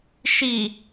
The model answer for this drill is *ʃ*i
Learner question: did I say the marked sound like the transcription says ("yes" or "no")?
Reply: yes